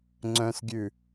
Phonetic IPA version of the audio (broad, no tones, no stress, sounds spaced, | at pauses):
ŋ͡ǀ œ̃ s ɡʲ ʉ